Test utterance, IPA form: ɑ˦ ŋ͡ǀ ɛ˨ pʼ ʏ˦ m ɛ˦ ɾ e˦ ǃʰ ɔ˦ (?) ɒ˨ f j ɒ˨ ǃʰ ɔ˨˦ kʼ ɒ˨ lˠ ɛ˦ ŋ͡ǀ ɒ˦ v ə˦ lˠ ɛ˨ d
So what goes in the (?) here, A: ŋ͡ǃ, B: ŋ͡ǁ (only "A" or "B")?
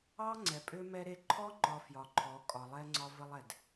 A